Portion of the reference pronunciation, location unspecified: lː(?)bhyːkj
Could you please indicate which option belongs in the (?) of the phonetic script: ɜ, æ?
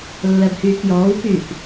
ɜ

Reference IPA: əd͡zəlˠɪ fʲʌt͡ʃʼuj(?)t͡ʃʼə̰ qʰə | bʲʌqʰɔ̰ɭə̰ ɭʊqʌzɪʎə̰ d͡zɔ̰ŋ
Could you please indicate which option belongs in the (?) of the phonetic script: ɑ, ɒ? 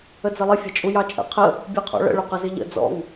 ɑ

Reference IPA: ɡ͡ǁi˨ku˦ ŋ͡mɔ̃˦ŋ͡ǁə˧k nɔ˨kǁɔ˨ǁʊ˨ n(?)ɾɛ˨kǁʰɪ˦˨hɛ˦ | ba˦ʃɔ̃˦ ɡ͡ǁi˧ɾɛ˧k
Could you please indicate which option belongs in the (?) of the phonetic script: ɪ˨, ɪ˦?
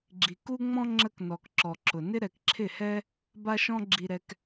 ɪ˦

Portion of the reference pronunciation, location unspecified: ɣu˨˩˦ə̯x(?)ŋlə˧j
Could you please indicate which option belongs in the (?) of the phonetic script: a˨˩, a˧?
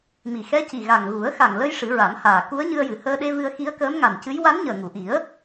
a˨˩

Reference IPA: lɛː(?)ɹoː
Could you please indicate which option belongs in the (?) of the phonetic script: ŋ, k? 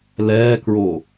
k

